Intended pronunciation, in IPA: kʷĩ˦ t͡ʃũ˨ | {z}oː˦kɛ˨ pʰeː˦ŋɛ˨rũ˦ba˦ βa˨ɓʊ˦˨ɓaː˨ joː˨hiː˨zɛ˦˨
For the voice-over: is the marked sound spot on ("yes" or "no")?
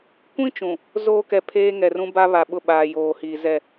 yes